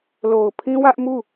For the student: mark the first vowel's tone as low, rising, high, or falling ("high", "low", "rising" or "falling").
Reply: low